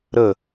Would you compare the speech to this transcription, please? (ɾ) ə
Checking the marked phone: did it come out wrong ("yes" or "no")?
no